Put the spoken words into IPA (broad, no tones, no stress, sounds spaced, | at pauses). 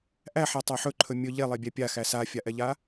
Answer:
ʔ æ ħ a tˤ æ ħ ɵ ǃʰ ɵ mʲ ɵ ʎ e lˠ e bʲ æ pʲ a x æ s a fʲ a ʔ ɛ ʎ a